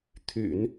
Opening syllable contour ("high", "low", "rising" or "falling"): low